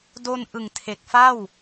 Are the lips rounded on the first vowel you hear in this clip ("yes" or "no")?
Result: yes